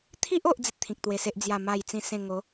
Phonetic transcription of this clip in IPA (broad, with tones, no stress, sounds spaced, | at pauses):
t̪ʰ i˦ ʔ o˦ ʔ d͡z i˦ t̚ t̪ʰ ĩ˨ k̚ t̪ w e˧ s e˦ ʔ d͡z j a˥˧ m a˥˧ j t͡s ĩ˥˧ s ẽ˥˧ ŋ o˨˦